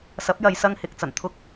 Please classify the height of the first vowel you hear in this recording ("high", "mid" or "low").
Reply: low